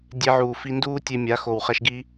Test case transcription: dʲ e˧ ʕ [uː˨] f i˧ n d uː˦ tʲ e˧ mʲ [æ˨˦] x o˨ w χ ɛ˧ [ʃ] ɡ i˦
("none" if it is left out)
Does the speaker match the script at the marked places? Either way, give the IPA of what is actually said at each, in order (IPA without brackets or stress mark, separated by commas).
uː˨, a˨˦, ʃ